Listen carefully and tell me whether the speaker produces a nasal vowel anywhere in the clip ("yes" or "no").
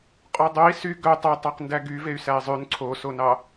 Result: no